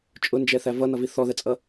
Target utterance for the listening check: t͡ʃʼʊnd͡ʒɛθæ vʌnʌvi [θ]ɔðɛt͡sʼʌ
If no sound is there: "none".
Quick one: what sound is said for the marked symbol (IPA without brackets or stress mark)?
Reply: θ